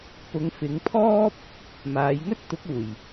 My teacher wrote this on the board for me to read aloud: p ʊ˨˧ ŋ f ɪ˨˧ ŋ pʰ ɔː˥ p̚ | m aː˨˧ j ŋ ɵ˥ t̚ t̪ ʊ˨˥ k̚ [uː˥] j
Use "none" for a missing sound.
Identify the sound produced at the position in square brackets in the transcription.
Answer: uː˨˩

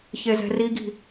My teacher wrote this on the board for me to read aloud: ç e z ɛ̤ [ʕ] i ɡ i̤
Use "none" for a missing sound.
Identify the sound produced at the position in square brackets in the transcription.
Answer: r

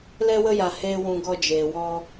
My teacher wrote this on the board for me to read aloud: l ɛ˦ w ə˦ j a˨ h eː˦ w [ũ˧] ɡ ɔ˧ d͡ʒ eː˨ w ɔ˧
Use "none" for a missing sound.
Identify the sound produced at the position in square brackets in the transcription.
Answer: ũ˧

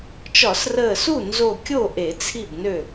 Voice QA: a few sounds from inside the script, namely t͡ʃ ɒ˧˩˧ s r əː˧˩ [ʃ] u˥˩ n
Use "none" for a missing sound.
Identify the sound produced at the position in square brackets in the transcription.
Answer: s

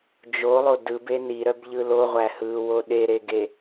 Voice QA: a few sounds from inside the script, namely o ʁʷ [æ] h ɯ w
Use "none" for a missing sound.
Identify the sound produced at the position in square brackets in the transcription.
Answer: æ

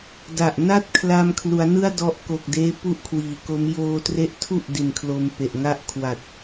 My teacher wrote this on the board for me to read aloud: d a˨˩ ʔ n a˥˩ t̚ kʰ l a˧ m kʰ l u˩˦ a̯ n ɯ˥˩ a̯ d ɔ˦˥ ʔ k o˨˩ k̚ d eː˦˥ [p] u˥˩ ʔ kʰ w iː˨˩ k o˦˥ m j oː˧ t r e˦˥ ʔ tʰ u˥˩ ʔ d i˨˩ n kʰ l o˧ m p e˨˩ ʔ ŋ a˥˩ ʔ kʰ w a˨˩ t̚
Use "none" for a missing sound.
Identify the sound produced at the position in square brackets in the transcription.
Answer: p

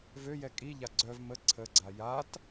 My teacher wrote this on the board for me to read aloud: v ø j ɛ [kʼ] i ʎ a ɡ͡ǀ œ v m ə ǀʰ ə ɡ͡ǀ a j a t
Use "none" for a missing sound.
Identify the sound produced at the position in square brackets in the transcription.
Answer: kʼ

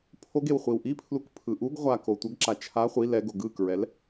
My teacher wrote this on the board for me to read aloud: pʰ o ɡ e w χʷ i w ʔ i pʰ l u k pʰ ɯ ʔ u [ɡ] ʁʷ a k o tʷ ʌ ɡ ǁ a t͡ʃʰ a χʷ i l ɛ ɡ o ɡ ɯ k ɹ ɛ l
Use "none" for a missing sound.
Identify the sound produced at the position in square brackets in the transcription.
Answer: ɡ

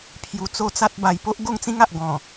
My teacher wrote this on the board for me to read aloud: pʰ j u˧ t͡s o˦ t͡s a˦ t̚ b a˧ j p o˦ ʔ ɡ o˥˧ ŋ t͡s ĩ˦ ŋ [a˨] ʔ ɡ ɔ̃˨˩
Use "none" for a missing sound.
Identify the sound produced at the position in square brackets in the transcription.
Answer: a˨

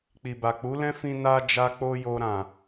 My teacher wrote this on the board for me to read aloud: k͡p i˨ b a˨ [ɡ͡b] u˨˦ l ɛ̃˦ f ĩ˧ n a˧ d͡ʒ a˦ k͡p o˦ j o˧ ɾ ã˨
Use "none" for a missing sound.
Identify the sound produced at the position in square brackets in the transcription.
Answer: k͡p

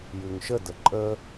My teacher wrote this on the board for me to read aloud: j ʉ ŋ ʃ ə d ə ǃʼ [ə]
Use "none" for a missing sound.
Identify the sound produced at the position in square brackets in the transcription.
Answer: ə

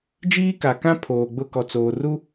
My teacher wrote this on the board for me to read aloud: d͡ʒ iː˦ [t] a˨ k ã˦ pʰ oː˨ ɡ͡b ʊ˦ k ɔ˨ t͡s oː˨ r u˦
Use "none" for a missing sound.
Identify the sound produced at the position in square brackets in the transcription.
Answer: k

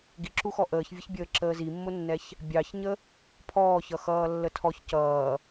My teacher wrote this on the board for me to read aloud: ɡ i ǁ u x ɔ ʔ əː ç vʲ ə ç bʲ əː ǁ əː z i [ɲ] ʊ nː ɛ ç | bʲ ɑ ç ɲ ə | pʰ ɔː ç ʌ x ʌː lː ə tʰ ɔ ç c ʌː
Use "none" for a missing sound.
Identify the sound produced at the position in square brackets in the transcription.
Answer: mː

